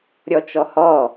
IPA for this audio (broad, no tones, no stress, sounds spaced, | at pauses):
ɾʲ ɔ t͡ʃ ɔ h ɔ